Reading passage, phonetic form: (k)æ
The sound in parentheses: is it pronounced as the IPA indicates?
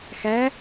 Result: no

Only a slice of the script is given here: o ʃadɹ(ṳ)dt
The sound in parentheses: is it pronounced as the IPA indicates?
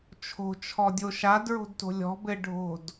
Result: no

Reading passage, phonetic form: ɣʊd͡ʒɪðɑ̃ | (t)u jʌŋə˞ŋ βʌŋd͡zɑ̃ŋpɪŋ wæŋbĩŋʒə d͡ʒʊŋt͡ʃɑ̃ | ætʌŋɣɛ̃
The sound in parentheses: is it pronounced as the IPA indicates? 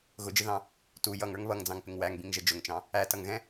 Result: yes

